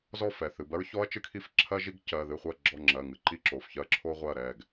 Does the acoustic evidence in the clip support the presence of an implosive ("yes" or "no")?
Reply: no